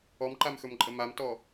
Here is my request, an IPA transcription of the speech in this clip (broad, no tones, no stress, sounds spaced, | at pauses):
ɔ m ǃ a m x ɵ m ǃʼ ə m a m t ɔ